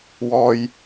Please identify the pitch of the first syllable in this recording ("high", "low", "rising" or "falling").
high